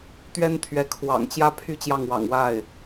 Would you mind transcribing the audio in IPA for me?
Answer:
t̪ ɥ ɛ˥ n t̪ʰ ɥ ɛ˧˥ kʰ w ɑ̰˨˩ ŋ t͡ɕ j ä˥ pʰ y˥ t͡ɕ j ɑ˥˩ ŋ w ɑ̰˨˩ ŋ w a˥˩ ɪ̯

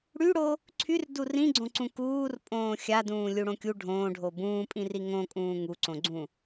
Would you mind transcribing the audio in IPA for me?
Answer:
ɽ y ɽ o | ǀʰ y r d u r ĩ ɡ͡ǀ õ ǀ ũ k uː r pʼ õː xʲ a d ũː lʲ u ɽ õ kʲ u ɖʱ õː ɖʱ o b ũː pʼ ĩ r i ŋ õ kʼ ũː ŋ u ǀ õ ɡ͡ǀ ũ

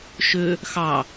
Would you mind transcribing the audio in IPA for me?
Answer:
ʃ ø | x ɑ

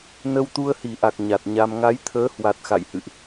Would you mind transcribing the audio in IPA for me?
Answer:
n ə˧ w t̪ u˧ ə̯ h i˧˩ ʔ a˨˩ k̚ ɲ a˨˩ t̚ ɲ a˧ m ŋ a˨˦ j t̪ʰ əː˨˦ h w a˨˩ t̚ x a̰˧˨ j h ɨ̰˧˨ ʔ

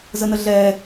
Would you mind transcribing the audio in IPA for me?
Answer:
z ə n ə ɮ ɛ

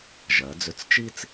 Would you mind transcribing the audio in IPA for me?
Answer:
ʒ ɜ˩˧ d͡z ʏ˧˩ t͡s t͡ʃ i˥ t͡s

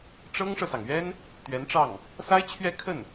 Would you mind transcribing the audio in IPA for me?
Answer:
ʈ͡ʂ ɤ˥ ŋ ʂ ɤ˨ s ɑ˩ ŋ ɥ ɛ˥ n | t̪ ɥ ɛ˧˥ n ʈ͡ʂ ɑ˥˩ ŋ | s a˥ ɪ̯ t͡ɕʰ ɥ ɛ˥˧ kʰ ə˥˩ n

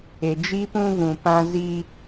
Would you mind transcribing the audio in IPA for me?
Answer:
e˨ d͡ʒ i˦ p ũ˦ v ũ˨ p ã˦ z i˦

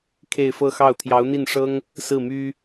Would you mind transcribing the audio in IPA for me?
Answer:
kʰ e˥˧ ɪ̯ f ɤ˥˧ x ɑ˥˩ ʊ̯ t̪ʰ j ɑ˧˥ ʊ̯ n̪ i˥˩ n ʂ ɤ˥ ŋ | s ɹ̩˥˩ m y˥

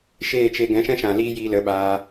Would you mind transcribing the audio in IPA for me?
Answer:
ʃ eː˦˨ t͡ʃ e˧ ɡ ɛ̃˨˦ ʃ ɛ̃˦ ʃ ã˨ l iː˦ j iː˧ l ə˨˦ ɓ aː˧

